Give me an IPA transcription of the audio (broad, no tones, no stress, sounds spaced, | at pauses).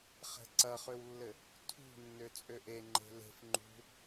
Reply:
χ ɛ̤ ǀ ɐ χ ø w lː ɘ | tʰ ṳ nː ø t͡sʼ ø ʔ e ŋ͡ǃ e̤ l e̤ f ŋ͡ǃ ṳ